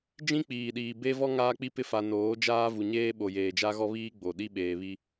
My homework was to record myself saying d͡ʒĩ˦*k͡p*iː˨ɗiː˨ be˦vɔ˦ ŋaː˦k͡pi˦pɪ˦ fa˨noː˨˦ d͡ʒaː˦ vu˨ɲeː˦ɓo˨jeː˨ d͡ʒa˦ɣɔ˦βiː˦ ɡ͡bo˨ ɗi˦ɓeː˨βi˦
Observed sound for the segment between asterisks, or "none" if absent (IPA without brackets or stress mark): k͡p